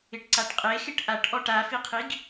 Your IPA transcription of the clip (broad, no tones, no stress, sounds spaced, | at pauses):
ɪ ʈ ǀ a ʈ qʼ e x ɪ ʈ ʔ a ʈ ʔ ɔ ʈ a f i qʰ i ɡ